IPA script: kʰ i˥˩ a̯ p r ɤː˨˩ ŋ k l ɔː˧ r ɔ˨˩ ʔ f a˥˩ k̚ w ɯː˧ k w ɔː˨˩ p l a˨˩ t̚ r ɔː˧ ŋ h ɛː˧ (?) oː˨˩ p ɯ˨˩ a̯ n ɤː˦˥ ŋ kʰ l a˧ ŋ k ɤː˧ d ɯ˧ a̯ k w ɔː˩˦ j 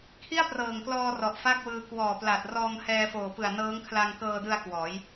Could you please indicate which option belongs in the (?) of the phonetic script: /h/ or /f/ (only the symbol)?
f